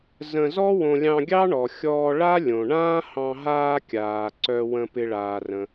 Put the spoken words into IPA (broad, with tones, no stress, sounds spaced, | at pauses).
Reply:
z ə̃˧ z ɔ˥ w õ˧ lʲ ɑ̃˧ ɡʲ ɑ˥ ɳ ɔ˩ xʲ ɔː˧ ɭ a˥ lʲ õ˩ ɳ ãː˥ h ɑ̃˧ ɦ aː˧ kʲ aː˩ ǀ œ˧ w ə̃˧ p ɪ˧ ɭ aː˩ r ə̃˩